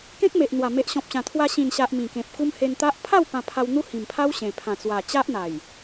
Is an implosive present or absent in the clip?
absent